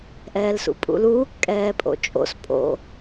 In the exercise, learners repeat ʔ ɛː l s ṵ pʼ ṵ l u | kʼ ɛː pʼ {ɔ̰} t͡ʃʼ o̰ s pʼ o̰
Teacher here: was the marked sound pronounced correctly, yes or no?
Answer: no